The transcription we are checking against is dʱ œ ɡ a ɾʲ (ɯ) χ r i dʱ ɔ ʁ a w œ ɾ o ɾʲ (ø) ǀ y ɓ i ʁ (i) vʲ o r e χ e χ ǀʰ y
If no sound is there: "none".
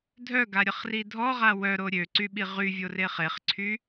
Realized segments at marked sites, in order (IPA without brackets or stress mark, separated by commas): ə, ø, y